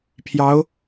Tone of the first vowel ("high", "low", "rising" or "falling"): rising